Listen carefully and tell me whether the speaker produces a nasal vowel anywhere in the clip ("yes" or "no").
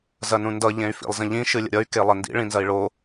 yes